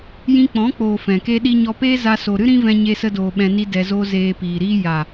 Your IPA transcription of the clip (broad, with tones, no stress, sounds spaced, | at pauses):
j ĩ˧ k͡p ɔ̃˨˦ k͡p oː˨ f ɛ̃˨ k e˦ ɗ i˦ ɲ ɔ˦ p eː˦ z a˧ s o˨ ɾ ɨ˦ ɾ ĩ˦ v ɛ̃˧ ɲ e˧ s ə˧ d oː˨ ɓ ɛ̃˧ n i˦ d ɛ˧ z oː˦ z eː˧ p iː˨ ɾ iː˦ j a˨